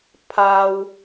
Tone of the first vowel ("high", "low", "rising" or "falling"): low